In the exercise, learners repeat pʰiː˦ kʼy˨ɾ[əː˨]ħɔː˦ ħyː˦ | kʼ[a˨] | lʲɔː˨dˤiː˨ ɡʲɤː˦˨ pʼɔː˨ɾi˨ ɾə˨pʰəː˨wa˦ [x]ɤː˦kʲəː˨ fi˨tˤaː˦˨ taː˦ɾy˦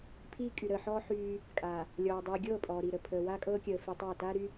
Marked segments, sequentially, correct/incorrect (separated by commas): correct, correct, incorrect